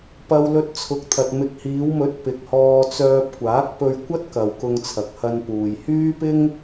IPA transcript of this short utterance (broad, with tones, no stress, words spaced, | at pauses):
pɐ˧w lɵ˧t̚t͡sʰʊ˨˥k̚t̪ʰɐ˨t̚ mɪ˨k̚hiː˨˧wmɵ˨˥t̚ pɪ˨k̚hɔː˧t͡sœː˧p̚ kʷaː˨˥k̚pɵ˧ɥkʷɐ˥t̚ kɐ˨w kʊ˧ŋt͡sʰɐ˨k̚hɐ˧n puː˨jhyː˥pɪ˥ŋ